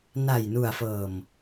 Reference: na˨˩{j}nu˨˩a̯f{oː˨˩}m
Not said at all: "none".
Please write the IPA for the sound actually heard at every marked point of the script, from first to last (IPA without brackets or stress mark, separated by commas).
j, ɤː˨˩